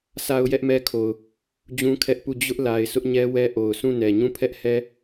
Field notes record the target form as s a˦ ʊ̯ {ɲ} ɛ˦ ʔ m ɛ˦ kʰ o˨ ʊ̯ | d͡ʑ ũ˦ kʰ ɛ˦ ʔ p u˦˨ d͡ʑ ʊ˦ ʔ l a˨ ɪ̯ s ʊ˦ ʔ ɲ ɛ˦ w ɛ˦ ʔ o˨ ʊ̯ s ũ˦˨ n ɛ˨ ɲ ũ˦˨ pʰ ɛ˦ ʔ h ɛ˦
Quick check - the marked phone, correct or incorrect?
incorrect